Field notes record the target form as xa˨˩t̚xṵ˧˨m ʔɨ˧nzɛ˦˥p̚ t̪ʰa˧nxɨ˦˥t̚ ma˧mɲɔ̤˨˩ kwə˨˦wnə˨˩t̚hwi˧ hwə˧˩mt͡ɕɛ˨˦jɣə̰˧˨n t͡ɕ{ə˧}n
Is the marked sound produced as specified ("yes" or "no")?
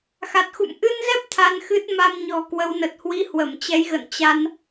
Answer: no